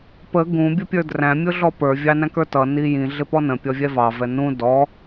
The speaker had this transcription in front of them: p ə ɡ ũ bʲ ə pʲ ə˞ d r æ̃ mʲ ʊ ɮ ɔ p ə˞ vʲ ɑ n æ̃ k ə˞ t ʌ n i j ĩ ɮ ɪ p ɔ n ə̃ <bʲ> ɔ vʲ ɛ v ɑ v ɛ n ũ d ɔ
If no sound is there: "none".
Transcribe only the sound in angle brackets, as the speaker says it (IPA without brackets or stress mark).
pʲ